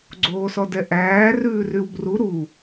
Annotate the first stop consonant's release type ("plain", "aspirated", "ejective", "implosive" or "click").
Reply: click